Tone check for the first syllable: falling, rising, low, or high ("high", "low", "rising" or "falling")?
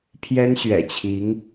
high